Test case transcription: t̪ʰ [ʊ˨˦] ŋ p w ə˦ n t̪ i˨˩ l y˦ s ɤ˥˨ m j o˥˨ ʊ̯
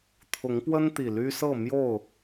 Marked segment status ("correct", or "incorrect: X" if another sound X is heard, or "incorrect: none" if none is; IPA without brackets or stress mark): correct